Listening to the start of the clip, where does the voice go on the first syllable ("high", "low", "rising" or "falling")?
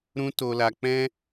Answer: high